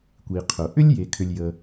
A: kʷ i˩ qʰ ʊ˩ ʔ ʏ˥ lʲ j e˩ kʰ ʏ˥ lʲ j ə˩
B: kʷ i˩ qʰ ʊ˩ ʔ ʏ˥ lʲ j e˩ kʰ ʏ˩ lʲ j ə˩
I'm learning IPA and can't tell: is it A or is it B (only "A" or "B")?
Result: B